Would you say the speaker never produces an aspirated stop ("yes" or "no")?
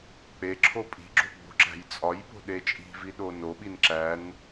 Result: no